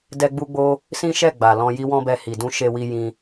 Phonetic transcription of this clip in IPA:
d ɛ˦ ɡ͡b u˦ ɡ͡b o˦ | s ĩ˦ ʃ ɛ˦˨ ɡ͡b a˨ l ɔ̃˧ j i˦ w ɔ̃˦ b ɛ˧ h i˨ d ũ˧ ʃ e˧ w i˧ j ĩ˧

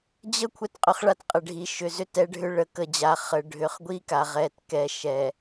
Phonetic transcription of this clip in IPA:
d͡ʑ ə˦ kʷʰ ɛ˦ t qʼ ʏ˦ χ ɭ a˦ t qʼ ə˨ ɖʱ i˨ ʃ ʏ˨ z ʏ˦˨ t ɛ˦ ɖʱ ʏ˦ ɭ ə˨ k ə˨ d͡ʑ a˨ χ ə˨ ɖʱ ʏ˨ χ ɡʷ i˦ k a˨ ʁ ɛ˨ t k ɛ˨ ʃ ɛ˨

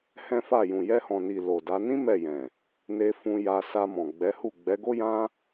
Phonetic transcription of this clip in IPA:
h ɛ̃˦ f a˦˨ j ũ˨ j ɛ˧ h ɔ̃˨ n i˨ l o˨ d a˨˦ n ĩ˦ m ɛ˦˨ j ɛ̃˨ | n e˧ f ũ˧ j a˧ s a˧ m ɔ̃˨ ɡ͡b ɛ˨˦ h u˦˨ ɡ͡b ɛ˨˦ ɡ o˦ j ã˦

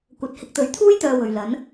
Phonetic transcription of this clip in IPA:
kʷ ɐ˧ t̚ h ɪ˧ k̚ t̪ ɵ˨˥ ɥ t̪ʰ uː˥ j t̪ œː˨ w ɵ˨ ɥ l ɐ˨˥ n

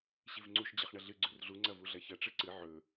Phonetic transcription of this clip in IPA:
ɕ i v ŋ͡ǀ u ʃ d͡ʑ ɐ χ ɳ ɐ ɮ ɨ ɡ͡ǀ ʉ r ɮ u ŋ͡ǀ ɐ v u ɮ ɐ ç ɐ ʈ͡ʂ ɨ ǀ ɨ ʕ ɵ

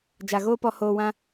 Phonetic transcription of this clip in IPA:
d͡ʒ a˨ ɣ oː˦ p ɔ˧ h oː˧ w ã˦

